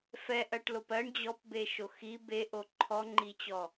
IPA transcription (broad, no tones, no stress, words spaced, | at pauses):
fɛʔ ɜʈlopɜɳ d͡ʑɔpbeʃo xi beʔo ǃʰɔŋ͡ǃit͡ɕɔ